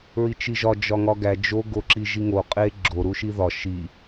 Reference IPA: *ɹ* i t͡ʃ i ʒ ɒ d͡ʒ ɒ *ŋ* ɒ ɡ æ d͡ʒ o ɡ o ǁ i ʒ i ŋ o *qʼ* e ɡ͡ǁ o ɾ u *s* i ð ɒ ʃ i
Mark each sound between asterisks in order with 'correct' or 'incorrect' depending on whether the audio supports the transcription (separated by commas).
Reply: correct, correct, correct, incorrect